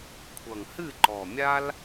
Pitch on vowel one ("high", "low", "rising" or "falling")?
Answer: low